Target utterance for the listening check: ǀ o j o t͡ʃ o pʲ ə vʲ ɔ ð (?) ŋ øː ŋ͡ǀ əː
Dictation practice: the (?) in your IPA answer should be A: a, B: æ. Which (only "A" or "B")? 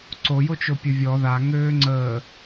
A